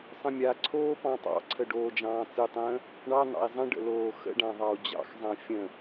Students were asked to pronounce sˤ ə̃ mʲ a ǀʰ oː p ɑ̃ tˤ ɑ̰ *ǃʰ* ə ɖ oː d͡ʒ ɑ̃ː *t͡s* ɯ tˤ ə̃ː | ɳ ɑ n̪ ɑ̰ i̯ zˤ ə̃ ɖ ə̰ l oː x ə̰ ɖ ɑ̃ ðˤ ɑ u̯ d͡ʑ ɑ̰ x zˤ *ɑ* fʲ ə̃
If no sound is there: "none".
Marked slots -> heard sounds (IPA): ǀʰ, t͡s, ɑ̃

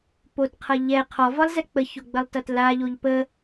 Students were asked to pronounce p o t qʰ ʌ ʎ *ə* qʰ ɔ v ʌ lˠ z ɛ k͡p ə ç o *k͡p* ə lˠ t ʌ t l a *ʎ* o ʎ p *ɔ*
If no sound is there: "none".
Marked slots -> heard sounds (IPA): ɛ, ɡ͡b, ʎ, ə

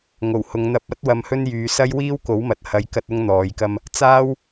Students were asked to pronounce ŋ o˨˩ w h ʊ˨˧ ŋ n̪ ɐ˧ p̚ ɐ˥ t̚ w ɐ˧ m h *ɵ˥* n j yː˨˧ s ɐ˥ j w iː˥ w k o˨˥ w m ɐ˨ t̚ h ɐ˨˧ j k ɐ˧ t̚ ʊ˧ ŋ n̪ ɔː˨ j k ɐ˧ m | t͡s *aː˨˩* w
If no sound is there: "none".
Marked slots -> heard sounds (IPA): ɵ˥, aː˥

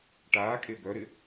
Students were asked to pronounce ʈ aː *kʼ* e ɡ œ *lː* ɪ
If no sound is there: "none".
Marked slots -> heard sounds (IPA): kʼ, ɾ

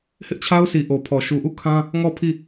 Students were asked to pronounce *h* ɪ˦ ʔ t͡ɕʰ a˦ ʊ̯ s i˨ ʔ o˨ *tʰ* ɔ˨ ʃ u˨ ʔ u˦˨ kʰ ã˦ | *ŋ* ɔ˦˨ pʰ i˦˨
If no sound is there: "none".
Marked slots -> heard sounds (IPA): h, pʰ, ŋ

